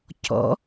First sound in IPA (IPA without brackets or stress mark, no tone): c